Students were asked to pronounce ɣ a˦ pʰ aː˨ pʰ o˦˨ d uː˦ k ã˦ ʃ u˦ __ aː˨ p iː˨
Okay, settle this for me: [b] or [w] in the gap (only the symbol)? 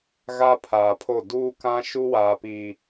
w